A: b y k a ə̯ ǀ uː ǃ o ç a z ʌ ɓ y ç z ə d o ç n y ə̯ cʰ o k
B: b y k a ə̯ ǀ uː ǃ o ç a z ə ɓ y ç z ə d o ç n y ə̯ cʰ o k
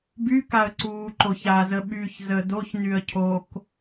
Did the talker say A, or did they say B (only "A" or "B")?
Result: B